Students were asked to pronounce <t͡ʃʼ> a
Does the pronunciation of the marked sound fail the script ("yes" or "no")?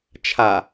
yes